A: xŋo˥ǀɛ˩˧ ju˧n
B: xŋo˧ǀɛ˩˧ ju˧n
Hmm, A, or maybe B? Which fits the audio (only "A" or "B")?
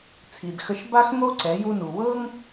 A